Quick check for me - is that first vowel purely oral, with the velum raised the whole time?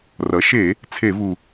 yes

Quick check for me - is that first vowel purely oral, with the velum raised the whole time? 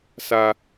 yes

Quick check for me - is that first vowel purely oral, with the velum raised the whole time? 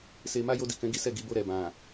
yes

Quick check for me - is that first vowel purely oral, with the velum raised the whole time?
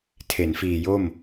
yes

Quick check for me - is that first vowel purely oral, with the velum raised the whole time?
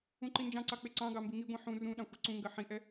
no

